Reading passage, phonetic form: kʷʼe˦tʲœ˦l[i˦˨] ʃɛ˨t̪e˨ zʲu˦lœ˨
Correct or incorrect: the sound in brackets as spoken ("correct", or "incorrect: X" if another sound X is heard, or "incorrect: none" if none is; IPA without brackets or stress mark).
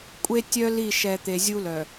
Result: correct